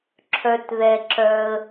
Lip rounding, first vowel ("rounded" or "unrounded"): rounded